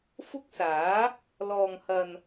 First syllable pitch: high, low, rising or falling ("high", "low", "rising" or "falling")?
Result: high